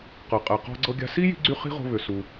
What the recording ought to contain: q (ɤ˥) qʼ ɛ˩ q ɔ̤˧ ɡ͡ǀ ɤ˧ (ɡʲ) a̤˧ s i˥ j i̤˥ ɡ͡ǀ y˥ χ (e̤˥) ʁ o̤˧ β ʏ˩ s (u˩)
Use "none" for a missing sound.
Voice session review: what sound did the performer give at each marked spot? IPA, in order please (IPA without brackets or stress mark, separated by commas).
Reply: ɤ˩, ɡʲ, i̤˥, u˩